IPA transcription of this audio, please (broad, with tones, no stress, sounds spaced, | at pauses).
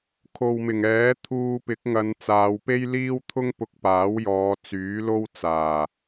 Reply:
kʰ o˨ w m ɪ˨˩ ŋ ɛː˨˥ t̪ʰ uː˧ p ɪ˨˥ k̚ ŋ ɐ˨˧ n t͡s aː˨˧ w p e˥ j l iː˥ w t̪ʰ ʊ˥ ŋ p ʊ˧ k̚ p aː˨˥ w j ɔː˨˧ t͡s yː˨˥ l o˥ w t͡s aː˨˩